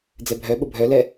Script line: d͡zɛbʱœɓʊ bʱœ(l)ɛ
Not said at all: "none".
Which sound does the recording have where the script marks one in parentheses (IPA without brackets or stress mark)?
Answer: l